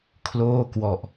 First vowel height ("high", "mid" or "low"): mid